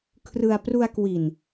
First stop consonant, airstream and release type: aspirated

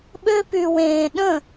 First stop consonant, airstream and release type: implosive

